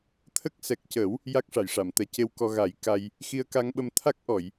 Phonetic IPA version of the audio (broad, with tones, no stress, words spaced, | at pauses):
t̪ʰə˦˥k̚ sɛ˨˩k̚cə˨˩˦w | ja˦˥k̚ʂa˨˩˨jʂa˨˩˨mt̪ɛ˨˩˦ ce˧wkɔ˧ ɣa˨˩˦jka˧j | xi˧ə̯ka˧ŋɓə˧m t̪ʰa˦˥k̚ʔɔ˨˩˨j